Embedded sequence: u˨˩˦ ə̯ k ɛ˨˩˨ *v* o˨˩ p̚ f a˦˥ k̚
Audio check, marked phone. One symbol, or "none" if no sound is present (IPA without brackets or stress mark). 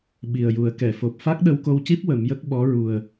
f